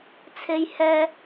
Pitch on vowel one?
high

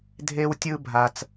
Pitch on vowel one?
high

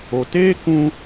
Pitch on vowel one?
low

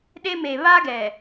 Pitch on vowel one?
high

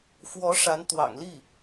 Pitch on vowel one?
rising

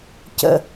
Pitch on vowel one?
falling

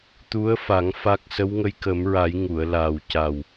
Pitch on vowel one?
rising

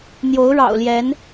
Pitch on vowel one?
rising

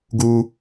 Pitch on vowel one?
high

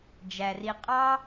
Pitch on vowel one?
low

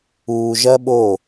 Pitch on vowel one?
low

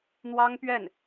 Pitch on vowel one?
high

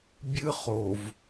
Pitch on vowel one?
high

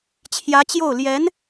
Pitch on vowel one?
rising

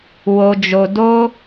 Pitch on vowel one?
low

